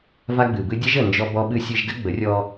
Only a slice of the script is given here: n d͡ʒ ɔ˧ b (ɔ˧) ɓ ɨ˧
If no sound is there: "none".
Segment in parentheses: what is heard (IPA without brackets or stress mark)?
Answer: ɔ˧